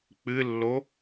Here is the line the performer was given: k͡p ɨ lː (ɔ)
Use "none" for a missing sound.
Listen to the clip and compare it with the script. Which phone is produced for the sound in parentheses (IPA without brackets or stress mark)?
o